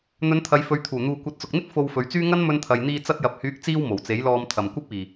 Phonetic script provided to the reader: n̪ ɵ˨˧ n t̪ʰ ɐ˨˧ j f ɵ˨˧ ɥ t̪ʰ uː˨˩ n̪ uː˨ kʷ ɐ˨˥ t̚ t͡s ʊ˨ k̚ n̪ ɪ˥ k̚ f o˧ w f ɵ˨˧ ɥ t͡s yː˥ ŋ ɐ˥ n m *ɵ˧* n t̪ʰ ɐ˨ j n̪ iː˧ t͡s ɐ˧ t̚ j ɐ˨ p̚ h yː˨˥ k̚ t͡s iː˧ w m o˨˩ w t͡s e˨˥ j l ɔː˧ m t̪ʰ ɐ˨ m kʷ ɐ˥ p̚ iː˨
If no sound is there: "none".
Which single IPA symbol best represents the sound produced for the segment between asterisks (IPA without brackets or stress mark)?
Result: ɵ˧